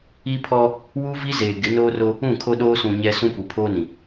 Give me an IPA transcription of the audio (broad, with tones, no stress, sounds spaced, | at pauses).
i˦ pʰ ɔ˦ | w u˦ v i˦ z eː˨ ɡ ɪ˨˦ n oː˦ r o˦ | ũ˦˨ kʰ o˦ ɗ oː˦ s ũ˨ ɲ ɛ˦ s ũ˦ p u˨ pʰ oː˦ n ĩ˨